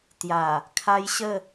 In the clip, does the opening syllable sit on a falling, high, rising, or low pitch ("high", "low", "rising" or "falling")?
low